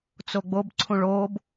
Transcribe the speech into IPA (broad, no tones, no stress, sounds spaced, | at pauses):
t͡s o ɡ͡b o b ǀʰ ũ ɭ oː b